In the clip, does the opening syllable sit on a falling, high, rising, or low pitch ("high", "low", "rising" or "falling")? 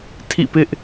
falling